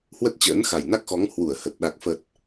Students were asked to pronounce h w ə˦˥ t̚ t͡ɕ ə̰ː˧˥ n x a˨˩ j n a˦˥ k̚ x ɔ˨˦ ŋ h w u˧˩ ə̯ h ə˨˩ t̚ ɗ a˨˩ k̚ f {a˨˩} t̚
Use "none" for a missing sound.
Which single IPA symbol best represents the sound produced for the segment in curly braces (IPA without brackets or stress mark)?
ə˨˩